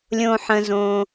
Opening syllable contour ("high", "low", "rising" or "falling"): low